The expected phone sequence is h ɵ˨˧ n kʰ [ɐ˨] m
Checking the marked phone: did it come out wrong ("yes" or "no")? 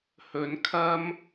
yes